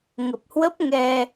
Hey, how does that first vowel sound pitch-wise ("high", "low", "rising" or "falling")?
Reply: low